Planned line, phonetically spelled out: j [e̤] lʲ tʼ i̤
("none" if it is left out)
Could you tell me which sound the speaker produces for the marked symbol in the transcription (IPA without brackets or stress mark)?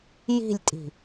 i̤